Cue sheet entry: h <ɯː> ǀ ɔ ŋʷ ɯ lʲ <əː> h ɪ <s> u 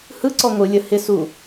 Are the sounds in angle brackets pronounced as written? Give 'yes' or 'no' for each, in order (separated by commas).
no, no, yes